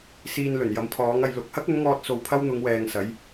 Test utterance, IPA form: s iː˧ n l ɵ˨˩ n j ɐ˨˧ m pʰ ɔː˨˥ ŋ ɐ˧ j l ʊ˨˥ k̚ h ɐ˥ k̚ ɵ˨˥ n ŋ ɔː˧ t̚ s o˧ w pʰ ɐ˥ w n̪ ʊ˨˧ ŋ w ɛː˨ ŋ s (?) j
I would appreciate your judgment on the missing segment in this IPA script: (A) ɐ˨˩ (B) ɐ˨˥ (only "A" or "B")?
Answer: B